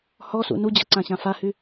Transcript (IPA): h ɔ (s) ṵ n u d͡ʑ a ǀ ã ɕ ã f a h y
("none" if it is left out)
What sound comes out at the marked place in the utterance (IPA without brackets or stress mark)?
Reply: s